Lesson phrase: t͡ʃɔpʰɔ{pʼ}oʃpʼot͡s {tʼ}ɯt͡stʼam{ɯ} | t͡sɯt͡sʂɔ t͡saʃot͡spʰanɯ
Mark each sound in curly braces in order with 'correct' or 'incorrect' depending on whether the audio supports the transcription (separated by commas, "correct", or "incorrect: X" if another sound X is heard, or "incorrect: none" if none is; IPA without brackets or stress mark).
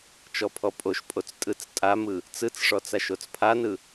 correct, correct, correct